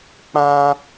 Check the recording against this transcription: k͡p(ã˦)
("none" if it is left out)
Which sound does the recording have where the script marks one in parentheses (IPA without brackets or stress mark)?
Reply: ã˦